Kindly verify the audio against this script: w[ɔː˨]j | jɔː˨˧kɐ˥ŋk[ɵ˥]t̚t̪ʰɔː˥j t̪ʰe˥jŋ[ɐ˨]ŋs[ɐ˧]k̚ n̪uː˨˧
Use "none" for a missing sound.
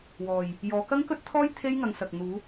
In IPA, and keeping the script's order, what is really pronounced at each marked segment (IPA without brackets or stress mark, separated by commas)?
ɔː˨, ɵ˥, ɐ˨˧, ɐ˨